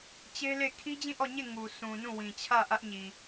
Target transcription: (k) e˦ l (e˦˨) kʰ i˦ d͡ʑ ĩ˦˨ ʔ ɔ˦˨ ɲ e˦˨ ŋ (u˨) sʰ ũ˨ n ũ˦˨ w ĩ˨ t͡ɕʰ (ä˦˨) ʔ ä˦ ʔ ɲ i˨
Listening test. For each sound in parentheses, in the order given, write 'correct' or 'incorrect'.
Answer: incorrect: t͡ɕ, correct, correct, correct

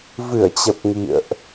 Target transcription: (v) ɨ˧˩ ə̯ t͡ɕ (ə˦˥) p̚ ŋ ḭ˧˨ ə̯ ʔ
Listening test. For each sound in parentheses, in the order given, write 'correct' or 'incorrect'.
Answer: correct, incorrect: ə˨˩

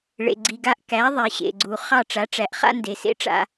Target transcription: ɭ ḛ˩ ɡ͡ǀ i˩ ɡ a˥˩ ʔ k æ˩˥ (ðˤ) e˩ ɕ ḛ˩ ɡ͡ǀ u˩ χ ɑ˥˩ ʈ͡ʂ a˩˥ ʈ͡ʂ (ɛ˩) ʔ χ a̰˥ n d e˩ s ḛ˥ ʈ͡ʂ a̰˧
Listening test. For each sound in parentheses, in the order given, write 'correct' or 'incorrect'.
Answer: correct, incorrect: æ˩

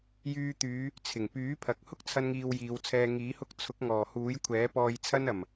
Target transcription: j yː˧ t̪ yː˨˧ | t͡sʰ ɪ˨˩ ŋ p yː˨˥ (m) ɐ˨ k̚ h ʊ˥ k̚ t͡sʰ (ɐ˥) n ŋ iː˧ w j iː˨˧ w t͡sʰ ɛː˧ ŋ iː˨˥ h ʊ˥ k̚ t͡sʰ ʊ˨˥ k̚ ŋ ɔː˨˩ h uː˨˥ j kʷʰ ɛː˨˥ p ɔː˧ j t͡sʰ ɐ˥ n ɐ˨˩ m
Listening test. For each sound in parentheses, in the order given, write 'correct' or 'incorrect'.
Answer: incorrect: pʰ, correct

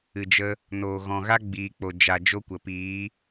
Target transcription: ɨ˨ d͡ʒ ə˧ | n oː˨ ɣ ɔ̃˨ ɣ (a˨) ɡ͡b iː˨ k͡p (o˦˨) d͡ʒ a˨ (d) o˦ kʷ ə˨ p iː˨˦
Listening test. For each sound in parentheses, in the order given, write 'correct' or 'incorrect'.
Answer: incorrect: a˦, incorrect: o˨, incorrect: d͡ʒ

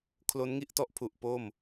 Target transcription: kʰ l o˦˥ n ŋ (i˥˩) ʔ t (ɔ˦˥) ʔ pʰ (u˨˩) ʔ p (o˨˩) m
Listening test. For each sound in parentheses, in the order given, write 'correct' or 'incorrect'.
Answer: correct, incorrect: ɔ˥˩, correct, incorrect: o˥˩

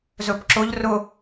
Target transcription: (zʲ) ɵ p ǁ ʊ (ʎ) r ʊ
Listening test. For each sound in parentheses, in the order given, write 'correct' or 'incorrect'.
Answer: incorrect: z, correct

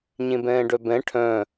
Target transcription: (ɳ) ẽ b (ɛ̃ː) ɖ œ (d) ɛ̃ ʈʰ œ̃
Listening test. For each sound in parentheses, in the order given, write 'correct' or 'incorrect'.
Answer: incorrect: ɲ, correct, incorrect: b

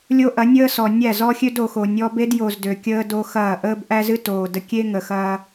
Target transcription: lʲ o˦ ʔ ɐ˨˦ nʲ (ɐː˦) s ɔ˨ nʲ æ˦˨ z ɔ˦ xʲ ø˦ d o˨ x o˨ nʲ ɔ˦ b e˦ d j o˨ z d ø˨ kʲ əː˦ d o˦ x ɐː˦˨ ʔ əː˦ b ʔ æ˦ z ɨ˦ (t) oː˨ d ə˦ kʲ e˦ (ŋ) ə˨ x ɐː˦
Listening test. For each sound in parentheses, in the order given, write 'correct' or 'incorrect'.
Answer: incorrect: əː˦, correct, correct

